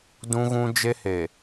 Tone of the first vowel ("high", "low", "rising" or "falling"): high